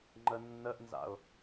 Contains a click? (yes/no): yes